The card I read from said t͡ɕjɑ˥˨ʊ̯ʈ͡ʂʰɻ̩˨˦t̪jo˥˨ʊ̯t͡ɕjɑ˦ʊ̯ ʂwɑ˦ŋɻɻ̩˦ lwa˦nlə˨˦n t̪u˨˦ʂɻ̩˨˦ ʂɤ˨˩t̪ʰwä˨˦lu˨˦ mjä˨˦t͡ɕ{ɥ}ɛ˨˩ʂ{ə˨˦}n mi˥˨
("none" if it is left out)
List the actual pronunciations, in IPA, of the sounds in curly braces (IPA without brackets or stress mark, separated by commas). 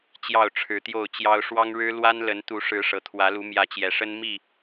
j, ə˦